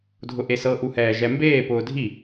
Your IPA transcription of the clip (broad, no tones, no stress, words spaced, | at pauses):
dʱʊʔesɤ ʔuhɛːʒɛmbeː pʊːdʱi